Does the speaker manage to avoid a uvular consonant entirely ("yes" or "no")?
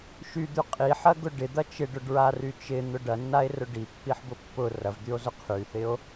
no